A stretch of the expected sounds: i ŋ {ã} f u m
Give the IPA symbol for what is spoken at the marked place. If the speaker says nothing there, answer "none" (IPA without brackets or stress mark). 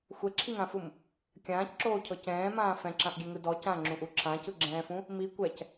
ã